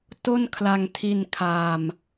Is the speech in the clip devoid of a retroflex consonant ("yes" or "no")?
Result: yes